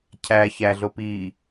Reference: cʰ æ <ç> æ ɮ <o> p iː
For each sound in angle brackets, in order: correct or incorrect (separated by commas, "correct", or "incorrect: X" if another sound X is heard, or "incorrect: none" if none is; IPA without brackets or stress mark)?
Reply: correct, correct